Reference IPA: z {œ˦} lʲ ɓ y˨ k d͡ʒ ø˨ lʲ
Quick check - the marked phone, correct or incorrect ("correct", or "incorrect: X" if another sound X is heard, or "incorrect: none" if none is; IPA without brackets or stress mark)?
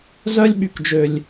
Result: correct